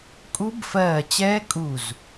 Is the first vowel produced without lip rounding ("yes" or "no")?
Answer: no